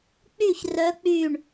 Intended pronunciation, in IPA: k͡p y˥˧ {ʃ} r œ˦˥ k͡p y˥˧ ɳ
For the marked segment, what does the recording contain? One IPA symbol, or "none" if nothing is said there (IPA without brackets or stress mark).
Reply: ç